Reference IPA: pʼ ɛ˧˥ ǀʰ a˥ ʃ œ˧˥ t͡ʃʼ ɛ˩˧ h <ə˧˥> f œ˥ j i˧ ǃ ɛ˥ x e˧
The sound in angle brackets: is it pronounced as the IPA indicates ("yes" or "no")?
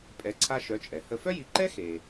no